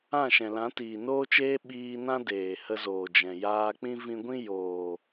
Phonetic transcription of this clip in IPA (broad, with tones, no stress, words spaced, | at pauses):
ã˦˨ʃɛ̃˨lã˨˦ tiː˨noː˦t͡ʃeː˦ ɓiː˧nã˦ deː˨hə˧zoː˨d͡ʒɛ̃˨ jaː˧k͡pĩ˦ vĩ˧ɡʷĩ˦ joː˨